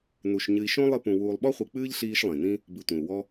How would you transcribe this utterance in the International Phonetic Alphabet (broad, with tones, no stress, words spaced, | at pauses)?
nu˨ʃ ɲɨ˨i̯ʃõ˦ lˠɨ˦pũ˨ wuː˨lˠɓɔ˥χʷɨ˨k͡pɨː˥ʎ ɬiː˦ʃlˠĩ˩nĩ˥ | bɨ˨tʷĩ˩u̯wɔ˦